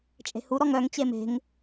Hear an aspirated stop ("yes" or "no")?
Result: no